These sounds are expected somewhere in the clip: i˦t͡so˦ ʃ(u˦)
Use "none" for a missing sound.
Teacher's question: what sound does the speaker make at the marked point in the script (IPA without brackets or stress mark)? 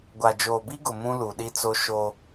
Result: o˦